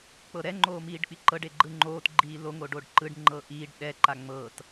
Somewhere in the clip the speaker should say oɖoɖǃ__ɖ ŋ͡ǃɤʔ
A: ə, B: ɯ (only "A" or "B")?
B